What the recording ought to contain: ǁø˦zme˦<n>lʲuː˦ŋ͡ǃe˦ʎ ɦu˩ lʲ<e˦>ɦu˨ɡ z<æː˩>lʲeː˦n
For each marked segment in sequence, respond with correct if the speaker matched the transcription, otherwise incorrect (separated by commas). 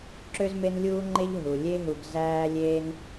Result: correct, correct, incorrect